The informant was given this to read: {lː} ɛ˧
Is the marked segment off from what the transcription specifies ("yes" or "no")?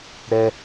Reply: yes